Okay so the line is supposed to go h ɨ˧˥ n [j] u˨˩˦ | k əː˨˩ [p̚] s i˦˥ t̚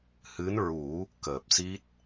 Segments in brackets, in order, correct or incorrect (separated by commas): incorrect, correct